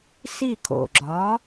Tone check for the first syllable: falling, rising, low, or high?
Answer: falling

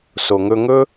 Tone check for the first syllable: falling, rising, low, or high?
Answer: low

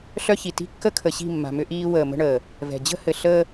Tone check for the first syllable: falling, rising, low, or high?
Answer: high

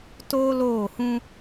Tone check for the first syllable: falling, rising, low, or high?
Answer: high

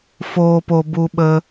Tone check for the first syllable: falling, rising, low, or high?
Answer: low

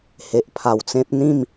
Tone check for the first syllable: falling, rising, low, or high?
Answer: low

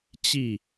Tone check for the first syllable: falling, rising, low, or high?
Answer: falling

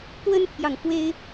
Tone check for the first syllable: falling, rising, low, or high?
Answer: high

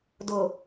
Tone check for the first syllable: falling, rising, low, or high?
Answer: low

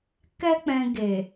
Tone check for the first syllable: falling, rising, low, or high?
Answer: high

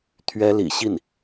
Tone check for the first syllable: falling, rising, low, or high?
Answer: high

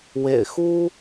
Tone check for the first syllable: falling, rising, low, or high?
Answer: low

